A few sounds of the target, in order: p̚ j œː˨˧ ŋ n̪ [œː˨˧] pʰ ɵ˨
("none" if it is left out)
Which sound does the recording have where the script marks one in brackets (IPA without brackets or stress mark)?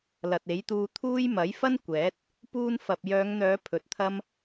œː˨˧